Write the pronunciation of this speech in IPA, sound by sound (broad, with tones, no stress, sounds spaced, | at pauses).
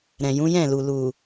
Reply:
ɾ ɛ̃˨ j ũ˨˦ j ɛ̃˦˨ l u˨ l u˨